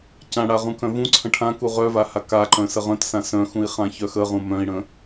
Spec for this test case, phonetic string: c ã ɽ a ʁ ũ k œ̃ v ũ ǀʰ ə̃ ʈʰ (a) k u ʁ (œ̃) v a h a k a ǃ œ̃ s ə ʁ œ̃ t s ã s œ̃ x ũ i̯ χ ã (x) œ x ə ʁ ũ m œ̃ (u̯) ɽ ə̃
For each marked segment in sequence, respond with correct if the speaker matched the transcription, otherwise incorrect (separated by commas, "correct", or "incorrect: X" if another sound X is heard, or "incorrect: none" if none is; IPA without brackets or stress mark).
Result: incorrect: ã, incorrect: œ, incorrect: ç, incorrect: i̯